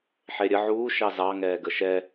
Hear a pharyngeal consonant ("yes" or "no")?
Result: yes